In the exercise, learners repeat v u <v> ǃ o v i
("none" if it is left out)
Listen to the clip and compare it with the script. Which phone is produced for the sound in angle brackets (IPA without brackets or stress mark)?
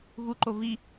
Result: none